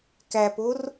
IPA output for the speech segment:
k æ p o r

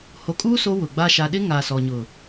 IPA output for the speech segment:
h o˨ kʼ uː˦ s o˦ w ʊ˨ ɡ͡b a˦ ʃ a˨ ɗ ɪ˦ ŋ a˨ s ɔ˨ ɲ ʊ˨

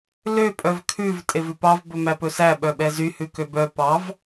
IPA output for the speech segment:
l ø pʼ œ v kʰ ʉ v tʼ e v ʉ p ɑ v b ɵ m æ p ɵ s æ ɓ œ ɓ ɛ z y h ʉ k ø b œ p ɑ v

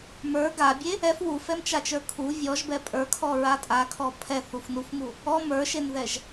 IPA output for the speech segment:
m ə˞ ɡ a bʲ e | ɛ f w u f ɛ m t͡ʃ a t͡ʃ ə˞ kʰ u vʲ ɔ ʒ b ɛ pʼ ə˞ kʰ ɔ ɹ a tʼ a kʰ ɔ pʰ ɛ θ u f n u f m u | ɔ m ə˞ ʃ e n ð ɛ ʒ

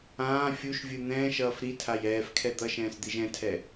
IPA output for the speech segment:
ãː fʲ u ʃ vʲ ɯ n̪ ɛ̃ː ʃ ʌː f ɾ i tʰ a j ɛː f kʰ ɛ d̪ ʌ ʃ ɛ̃ː s d̪ i ʒ ɛ̃ tʰ ɛ

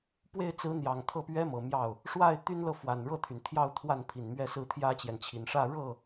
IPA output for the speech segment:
p w e˥˩ ɪ̯ t͡s ɹ̩˧˥ n̪ j ɑ˨˩ ŋ t̪ʰ ɤ˥˩ p ɥ ɛ˥ m ɤ˨˩ m j ɑ˥˩ ʊ̯ | ʂ w a˥˩ ɪ̯ t̪ y˥ n l ɤ˥˩ f w a˨˩ n ɻ ɤ˥˩ t̪ʰ y˩ n t̪ʰ j ɑ˥˧ ʊ̯ t̪ʰ w a˥˩ n pʰ i˨˩ n m ɥ ɛ˥˧ s ɹ̩˥˩ t̪ʰ j ä˥ t͡ɕ j ɛ˨ n t͡ɕʰ i˨˩ n ʂ ä˥˧ ɻ ɤ˥˩

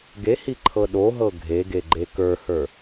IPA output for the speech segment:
ɡ e h i ǃʰ ɤ ɗ o ɦ ɤ ɡʱ e ɡ e ɡ͡ǃ e k ə˞ h ə˞

